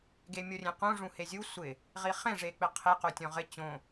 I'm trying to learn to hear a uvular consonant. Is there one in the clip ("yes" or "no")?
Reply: yes